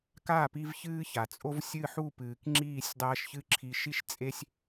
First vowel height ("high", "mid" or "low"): low